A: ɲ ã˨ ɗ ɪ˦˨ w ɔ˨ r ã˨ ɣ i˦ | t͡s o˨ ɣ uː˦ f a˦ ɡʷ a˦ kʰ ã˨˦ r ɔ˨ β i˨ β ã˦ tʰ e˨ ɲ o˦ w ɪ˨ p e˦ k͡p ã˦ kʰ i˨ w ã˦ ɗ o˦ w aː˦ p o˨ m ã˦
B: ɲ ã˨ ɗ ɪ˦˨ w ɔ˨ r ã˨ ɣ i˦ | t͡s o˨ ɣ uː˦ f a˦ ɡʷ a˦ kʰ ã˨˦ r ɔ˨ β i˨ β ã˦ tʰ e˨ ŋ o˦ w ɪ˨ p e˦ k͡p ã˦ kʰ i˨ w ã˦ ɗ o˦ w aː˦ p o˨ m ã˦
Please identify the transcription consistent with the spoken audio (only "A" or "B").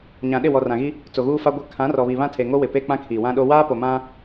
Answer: B